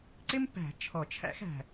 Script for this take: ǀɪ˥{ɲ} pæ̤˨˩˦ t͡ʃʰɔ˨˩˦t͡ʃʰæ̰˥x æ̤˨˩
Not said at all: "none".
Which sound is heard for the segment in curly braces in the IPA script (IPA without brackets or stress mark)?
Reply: m